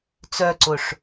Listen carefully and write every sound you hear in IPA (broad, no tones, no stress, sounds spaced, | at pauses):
t͡s œ ǀ ʊ ʂ